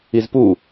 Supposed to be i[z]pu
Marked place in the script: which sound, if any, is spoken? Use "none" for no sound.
z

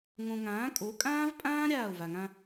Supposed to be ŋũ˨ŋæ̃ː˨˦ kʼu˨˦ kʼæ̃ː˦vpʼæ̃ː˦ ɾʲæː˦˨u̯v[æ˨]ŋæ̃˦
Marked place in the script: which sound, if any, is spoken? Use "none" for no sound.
æ˨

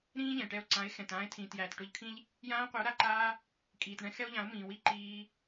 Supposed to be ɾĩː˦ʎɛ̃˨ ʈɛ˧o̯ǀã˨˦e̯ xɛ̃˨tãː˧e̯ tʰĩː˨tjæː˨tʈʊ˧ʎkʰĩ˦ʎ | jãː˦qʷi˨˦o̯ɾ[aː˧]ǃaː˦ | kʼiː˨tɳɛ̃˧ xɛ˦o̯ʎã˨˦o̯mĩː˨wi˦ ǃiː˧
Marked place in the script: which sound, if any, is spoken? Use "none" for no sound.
a˧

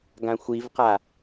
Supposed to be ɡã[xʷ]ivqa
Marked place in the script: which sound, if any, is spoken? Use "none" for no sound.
xʷ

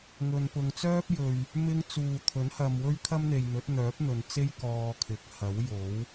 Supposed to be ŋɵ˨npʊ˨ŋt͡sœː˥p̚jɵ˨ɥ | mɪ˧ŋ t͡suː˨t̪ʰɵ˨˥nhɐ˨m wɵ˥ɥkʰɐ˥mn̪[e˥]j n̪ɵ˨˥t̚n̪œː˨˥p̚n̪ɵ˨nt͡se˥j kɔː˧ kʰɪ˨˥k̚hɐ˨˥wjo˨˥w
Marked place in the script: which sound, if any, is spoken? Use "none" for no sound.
e˨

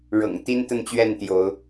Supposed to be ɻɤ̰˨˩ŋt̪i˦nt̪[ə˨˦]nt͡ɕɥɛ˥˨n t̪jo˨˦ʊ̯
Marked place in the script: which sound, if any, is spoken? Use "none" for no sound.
ə˥˨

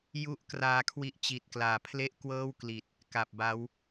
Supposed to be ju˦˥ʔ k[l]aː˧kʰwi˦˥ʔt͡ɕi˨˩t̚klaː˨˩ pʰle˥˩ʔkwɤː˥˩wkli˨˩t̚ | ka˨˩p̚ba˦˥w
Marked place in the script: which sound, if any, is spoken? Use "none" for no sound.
r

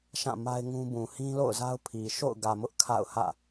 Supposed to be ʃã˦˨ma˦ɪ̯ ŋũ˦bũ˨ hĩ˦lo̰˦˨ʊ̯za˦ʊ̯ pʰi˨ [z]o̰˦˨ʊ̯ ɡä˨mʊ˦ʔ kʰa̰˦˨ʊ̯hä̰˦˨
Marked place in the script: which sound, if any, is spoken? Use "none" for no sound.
ʃ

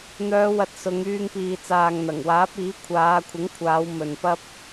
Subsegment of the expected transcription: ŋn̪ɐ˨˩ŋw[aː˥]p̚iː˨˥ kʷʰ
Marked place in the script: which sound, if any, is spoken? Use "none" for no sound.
aː˨˥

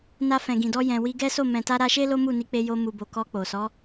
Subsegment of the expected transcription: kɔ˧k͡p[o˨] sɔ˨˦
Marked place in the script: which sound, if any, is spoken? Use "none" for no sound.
o˨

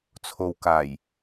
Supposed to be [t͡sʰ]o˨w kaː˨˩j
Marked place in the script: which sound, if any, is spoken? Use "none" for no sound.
t͡sʰ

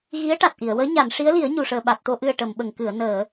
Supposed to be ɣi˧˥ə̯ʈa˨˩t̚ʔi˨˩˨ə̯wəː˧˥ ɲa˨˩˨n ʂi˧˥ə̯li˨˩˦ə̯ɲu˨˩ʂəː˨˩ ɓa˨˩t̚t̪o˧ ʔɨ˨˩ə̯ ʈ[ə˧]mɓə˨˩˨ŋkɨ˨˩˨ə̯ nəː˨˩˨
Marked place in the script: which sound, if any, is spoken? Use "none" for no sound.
ə˨˩˨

